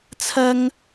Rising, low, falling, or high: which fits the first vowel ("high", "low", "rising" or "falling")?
high